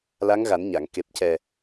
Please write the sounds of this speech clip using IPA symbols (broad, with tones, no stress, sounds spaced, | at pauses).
l a˧˥ ŋ ɣ a˨˩˦ n ɲ a˨˩˨ ŋ k e˨˩ p̚ c ɛ˨˩